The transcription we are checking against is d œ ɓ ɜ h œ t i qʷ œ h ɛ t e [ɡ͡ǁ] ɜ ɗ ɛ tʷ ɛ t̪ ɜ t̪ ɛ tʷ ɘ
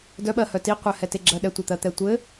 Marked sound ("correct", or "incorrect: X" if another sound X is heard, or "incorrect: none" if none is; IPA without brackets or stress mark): correct